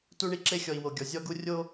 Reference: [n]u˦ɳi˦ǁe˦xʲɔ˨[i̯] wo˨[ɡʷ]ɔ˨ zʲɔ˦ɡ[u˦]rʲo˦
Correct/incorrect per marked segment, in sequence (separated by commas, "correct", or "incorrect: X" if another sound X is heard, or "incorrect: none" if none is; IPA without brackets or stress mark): incorrect: t, correct, incorrect: ɡʲ, correct